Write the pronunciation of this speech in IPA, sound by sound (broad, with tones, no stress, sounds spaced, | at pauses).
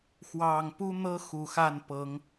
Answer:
x w ɑ˨˩ ŋ p u˦ n̪ ɤ˦ x u˨˩ x a˥˨ n p ɤ˨˦ ŋ